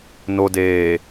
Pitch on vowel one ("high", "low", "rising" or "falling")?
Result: low